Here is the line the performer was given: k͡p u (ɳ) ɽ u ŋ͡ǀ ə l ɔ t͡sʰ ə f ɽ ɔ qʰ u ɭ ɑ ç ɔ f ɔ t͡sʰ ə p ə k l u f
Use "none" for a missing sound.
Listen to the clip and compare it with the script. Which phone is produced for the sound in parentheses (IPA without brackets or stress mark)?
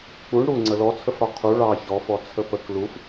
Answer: ɳ